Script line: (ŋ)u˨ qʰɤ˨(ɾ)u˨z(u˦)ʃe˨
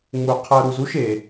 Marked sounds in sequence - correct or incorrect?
incorrect: ŋ͡m, correct, correct

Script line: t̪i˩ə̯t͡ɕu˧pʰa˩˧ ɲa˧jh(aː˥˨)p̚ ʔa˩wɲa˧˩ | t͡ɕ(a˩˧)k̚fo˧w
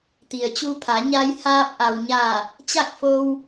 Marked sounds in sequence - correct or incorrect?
incorrect: aː˧, incorrect: a˥˨

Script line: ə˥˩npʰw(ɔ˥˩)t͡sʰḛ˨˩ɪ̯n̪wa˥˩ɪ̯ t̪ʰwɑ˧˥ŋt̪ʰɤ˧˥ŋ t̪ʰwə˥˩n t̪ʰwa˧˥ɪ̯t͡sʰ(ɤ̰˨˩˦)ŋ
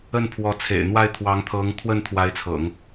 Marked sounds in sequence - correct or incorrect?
incorrect: ɔ˧˥, correct

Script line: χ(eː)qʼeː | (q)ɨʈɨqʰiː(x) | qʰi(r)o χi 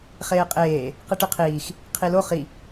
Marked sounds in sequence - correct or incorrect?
correct, correct, correct, incorrect: l

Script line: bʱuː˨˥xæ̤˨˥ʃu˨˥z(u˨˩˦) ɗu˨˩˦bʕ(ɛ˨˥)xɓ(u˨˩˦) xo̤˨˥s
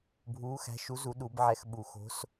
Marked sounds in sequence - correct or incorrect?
correct, correct, correct

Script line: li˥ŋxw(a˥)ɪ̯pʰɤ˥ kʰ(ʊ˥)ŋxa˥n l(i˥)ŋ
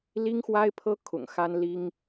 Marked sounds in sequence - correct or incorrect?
correct, incorrect: ʊ̰˨˩, correct

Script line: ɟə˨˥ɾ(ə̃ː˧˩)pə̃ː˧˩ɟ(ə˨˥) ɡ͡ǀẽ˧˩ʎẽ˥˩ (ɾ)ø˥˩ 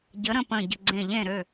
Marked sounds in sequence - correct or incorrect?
incorrect: ə̃˧˩, incorrect: ə˧˩, correct

